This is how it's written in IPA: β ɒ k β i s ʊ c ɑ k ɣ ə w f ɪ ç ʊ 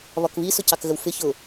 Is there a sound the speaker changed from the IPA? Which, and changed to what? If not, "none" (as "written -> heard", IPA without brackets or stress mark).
none